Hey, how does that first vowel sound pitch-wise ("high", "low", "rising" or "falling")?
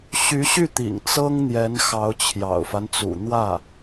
rising